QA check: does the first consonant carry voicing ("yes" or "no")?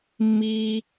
yes